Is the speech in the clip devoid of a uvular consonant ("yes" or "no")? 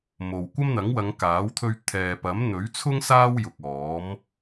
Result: yes